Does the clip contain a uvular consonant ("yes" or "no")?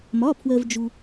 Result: no